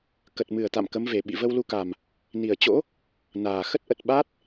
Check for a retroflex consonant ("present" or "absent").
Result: absent